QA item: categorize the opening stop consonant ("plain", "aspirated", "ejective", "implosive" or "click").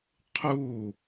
aspirated